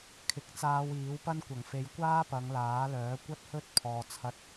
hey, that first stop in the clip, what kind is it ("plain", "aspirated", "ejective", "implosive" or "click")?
aspirated